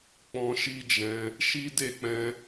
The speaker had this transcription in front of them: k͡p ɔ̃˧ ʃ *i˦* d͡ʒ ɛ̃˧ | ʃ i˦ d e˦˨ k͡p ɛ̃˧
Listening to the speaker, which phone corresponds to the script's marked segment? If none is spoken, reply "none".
i˦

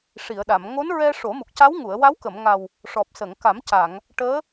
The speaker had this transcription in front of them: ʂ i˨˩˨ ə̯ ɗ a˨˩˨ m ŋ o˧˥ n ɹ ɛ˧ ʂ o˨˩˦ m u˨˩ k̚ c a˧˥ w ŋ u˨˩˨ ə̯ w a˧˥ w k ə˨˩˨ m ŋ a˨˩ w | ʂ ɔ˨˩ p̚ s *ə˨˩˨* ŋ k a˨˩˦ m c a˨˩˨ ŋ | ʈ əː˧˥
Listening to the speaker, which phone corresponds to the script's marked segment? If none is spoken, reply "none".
ə˨˩˨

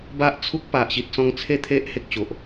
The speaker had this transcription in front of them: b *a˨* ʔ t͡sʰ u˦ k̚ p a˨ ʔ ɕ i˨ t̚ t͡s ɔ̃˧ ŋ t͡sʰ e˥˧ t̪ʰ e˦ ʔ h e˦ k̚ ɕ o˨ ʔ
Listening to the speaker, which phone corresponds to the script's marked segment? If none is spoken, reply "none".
a˦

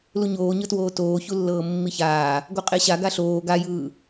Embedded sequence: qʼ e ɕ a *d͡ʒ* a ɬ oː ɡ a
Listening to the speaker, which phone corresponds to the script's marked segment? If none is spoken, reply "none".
ɡ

